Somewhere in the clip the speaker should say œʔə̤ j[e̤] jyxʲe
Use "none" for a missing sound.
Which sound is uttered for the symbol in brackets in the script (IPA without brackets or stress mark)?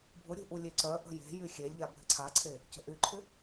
e̤